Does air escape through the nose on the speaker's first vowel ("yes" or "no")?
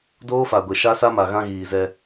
no